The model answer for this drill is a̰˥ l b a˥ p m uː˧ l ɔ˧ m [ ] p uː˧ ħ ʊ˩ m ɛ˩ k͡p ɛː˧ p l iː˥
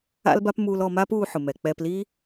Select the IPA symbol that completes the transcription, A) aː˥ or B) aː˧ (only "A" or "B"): A